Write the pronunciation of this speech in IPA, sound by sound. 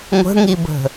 ŋʷ ə̤ ŋ i b ə̤

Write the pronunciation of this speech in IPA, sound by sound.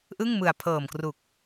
ʔ ɯ˥˩ ŋ m ɯ˨˩ a̯ pʰ ɤː˨˩ m k r u˨˩ k̚

